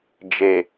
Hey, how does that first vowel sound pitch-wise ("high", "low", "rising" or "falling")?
low